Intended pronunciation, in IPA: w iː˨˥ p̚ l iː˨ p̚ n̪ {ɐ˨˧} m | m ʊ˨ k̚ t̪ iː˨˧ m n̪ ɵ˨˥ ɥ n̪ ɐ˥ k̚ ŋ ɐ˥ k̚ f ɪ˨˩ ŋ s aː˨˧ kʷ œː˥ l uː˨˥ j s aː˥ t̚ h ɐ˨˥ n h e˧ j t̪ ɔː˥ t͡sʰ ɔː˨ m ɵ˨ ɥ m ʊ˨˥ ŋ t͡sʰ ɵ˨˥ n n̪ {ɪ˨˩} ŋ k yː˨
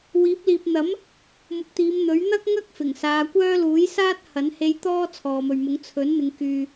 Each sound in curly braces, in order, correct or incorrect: incorrect: ɐ˨˥, incorrect: ɪ˨˧

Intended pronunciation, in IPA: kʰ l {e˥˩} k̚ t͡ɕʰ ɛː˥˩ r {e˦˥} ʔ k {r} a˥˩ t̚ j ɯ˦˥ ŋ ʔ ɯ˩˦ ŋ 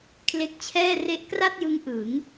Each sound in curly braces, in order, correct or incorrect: incorrect: e˦˥, correct, correct

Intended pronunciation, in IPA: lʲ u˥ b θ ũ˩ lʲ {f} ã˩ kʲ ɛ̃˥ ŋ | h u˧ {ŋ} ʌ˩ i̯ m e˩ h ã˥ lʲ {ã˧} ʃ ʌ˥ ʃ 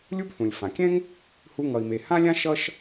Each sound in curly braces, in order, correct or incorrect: correct, correct, incorrect: ã˥

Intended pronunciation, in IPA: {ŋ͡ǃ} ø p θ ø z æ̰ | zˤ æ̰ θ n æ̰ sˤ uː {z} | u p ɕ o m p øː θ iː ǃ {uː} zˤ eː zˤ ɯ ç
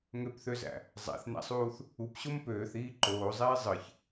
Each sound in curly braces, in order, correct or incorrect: incorrect: ŋ, incorrect: θ, incorrect: oː

